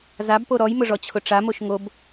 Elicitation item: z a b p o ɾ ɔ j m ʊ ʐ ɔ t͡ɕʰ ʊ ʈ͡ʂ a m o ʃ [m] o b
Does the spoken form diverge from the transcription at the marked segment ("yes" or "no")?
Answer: yes